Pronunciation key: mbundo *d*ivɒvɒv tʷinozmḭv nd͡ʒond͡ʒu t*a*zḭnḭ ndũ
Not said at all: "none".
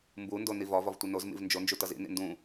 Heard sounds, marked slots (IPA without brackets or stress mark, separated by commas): n, ʌ